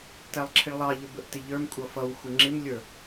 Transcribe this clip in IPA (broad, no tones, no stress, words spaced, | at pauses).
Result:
tælˠǁʰɪɭlˠɑʎə bəʔtɪʎə˞m kʷʼʌfʌw xʷəŋ͡ǁɪmlʲə˞